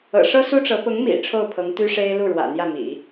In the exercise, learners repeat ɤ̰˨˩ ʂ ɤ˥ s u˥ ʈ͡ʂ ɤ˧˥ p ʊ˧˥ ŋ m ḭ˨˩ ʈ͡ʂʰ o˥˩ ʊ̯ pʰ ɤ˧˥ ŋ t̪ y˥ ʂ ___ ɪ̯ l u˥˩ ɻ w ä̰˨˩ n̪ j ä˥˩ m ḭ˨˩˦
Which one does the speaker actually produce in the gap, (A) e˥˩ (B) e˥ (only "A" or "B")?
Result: B